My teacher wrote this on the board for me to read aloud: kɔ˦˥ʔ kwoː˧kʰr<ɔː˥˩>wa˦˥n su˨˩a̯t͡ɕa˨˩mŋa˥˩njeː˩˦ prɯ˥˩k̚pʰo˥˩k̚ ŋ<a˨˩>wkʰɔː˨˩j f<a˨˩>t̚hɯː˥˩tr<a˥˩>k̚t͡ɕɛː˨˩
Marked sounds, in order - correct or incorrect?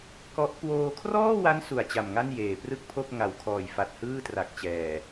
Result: correct, correct, correct, incorrect: a˨˩

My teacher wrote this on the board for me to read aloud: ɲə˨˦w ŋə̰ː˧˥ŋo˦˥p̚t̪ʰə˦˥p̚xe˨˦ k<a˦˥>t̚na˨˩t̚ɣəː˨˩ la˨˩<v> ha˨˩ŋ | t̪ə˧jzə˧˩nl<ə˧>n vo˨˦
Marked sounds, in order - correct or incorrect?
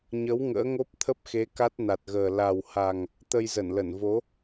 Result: correct, incorrect: w, incorrect: ə˧˩

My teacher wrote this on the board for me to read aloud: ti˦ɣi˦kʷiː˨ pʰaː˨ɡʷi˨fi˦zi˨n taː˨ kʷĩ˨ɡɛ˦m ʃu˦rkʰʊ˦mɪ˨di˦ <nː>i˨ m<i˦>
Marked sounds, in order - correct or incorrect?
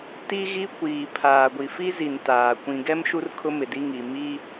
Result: incorrect: ŋ, correct

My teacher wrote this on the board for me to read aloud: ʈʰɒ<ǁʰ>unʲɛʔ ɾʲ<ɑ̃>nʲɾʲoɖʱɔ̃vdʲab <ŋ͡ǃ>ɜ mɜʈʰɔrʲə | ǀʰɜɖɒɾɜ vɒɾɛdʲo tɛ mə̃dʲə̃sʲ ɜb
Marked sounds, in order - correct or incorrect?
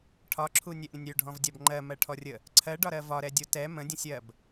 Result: correct, incorrect: ə̃, correct

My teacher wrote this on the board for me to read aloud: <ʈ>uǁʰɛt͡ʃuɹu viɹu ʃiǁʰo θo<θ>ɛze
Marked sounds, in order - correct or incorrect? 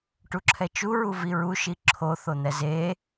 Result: correct, incorrect: n̪

